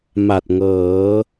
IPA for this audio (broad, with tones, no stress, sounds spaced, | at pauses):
m a˨˩ t̚ ŋ ɤː˩˦